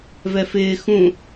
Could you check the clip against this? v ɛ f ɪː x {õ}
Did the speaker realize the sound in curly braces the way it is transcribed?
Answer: no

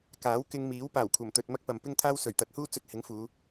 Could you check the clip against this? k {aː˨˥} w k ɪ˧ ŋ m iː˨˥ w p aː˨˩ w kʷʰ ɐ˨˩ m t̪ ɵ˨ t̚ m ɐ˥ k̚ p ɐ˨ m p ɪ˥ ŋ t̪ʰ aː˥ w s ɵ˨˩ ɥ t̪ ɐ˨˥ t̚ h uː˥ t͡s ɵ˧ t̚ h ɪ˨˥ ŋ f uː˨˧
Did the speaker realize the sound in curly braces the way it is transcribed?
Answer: yes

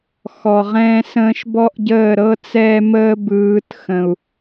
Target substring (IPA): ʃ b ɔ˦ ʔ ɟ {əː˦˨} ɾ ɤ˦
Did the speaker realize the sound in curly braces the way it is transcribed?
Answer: yes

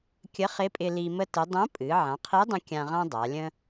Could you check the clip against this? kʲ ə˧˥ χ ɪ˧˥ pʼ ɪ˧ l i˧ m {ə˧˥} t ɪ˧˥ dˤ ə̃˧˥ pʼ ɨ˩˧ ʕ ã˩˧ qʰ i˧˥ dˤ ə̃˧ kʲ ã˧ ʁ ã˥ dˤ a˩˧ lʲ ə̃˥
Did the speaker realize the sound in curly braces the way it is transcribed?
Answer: no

